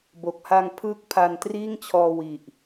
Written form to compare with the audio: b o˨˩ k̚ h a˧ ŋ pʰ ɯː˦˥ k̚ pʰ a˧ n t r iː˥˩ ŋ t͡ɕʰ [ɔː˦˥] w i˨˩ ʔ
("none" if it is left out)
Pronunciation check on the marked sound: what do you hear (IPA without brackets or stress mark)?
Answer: ɔː˧